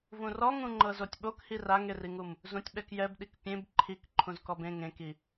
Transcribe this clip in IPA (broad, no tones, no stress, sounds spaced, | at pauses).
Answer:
v ũ r ɔ ŋ ũ ŋ͡ǃ ɤ z o tʲ ɓ o k h i r a ŋ e r i ŋ u m | z ũ tʲ ɓ ɛ k j ɛ b ɗ i k pʲ ẽ b ǃʰ i k ǃʰ ũ z k ɔ b ẽ ŋ ẽ k i